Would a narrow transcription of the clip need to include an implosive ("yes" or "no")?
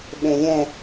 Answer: yes